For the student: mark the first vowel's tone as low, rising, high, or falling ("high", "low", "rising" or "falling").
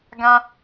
high